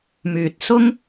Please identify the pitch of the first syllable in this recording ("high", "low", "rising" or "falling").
low